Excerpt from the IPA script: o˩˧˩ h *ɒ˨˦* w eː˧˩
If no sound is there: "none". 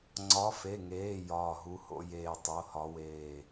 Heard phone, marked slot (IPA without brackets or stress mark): ɒ˨˦